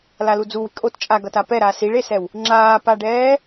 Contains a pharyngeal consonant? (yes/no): no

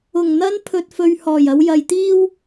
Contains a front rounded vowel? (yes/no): no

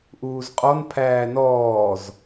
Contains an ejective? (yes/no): yes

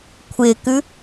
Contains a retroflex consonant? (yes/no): no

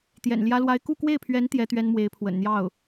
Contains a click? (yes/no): no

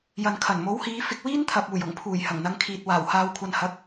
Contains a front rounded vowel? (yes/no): no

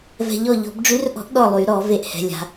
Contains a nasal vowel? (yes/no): no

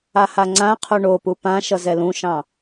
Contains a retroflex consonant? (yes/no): yes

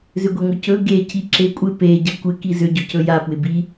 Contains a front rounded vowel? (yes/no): yes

